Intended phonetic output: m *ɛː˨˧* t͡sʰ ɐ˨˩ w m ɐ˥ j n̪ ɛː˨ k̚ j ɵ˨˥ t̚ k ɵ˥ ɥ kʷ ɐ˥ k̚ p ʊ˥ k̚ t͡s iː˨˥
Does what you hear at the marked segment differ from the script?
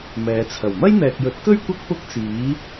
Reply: no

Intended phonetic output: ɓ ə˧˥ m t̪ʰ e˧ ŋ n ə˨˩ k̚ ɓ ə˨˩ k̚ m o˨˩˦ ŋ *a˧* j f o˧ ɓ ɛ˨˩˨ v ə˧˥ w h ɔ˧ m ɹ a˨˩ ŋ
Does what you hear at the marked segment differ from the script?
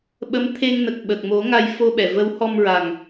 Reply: no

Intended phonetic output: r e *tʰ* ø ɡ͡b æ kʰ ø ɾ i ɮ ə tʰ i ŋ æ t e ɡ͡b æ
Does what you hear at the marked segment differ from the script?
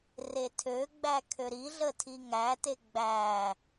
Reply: no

